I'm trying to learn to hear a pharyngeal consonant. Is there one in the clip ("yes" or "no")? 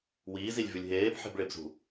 yes